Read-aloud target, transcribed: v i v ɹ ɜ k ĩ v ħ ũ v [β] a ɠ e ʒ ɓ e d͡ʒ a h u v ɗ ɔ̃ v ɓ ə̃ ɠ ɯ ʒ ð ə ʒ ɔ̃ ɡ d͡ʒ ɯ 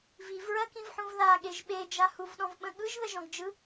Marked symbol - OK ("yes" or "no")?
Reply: no